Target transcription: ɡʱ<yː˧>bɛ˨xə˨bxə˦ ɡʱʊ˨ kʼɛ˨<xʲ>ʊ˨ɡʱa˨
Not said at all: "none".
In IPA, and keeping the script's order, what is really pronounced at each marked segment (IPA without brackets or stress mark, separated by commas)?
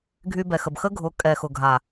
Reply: y˧, x